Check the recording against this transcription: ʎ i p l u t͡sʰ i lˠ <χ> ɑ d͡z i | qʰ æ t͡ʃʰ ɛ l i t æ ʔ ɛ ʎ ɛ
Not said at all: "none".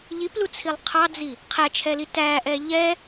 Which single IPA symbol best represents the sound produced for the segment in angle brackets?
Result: qʰ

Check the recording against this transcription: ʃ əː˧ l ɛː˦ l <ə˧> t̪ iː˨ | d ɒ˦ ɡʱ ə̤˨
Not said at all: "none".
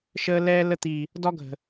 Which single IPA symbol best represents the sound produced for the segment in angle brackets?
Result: ə˧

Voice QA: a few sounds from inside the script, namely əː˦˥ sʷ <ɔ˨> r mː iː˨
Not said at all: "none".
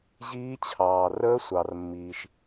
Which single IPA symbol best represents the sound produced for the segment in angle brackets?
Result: ɑ˨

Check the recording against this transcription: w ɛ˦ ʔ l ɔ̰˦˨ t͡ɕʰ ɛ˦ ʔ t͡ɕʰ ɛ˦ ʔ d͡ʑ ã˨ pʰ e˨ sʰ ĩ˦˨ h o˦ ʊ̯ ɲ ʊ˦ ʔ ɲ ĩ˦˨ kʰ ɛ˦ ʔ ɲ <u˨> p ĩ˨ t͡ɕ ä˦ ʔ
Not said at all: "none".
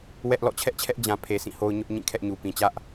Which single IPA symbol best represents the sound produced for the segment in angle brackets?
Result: u˨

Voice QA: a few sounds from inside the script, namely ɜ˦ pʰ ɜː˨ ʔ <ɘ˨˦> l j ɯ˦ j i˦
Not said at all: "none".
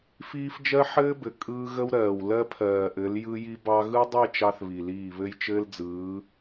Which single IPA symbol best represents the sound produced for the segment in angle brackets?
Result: ɘ˨˦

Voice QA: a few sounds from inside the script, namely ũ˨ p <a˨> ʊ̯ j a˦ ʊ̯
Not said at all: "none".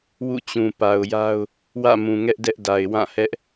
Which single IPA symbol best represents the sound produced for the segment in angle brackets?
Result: a˨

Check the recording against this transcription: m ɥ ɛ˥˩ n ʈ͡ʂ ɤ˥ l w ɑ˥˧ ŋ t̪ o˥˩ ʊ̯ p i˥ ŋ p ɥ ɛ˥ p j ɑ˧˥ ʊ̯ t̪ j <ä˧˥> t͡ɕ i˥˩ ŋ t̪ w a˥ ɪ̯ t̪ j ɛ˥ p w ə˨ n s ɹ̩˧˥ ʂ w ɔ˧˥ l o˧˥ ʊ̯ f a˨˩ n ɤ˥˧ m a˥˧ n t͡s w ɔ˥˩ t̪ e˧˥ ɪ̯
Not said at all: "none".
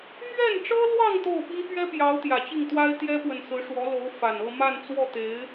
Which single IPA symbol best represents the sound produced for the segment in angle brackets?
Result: ä˨˩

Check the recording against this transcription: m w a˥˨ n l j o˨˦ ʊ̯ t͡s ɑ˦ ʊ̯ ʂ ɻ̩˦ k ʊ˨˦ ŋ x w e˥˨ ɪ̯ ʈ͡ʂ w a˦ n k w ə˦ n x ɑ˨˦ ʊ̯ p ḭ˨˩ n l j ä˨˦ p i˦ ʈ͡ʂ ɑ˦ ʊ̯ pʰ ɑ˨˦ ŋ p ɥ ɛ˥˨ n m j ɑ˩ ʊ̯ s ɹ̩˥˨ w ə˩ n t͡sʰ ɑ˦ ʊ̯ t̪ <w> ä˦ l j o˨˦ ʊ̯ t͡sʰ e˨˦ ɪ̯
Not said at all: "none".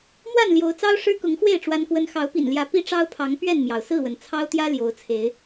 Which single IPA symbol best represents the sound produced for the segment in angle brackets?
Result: j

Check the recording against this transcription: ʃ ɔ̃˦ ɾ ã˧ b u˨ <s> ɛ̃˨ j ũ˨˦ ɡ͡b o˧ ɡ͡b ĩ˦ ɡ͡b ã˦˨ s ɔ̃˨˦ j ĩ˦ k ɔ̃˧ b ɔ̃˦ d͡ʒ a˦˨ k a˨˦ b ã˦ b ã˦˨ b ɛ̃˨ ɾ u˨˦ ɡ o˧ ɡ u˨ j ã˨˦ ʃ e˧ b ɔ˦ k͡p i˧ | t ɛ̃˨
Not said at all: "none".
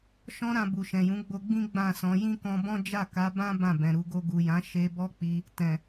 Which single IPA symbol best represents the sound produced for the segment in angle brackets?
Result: ʃ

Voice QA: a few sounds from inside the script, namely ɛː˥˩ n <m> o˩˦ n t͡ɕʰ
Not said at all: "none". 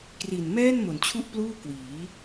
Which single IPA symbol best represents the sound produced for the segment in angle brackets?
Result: m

